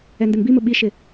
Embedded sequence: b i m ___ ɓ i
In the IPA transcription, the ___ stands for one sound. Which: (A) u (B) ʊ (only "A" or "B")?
B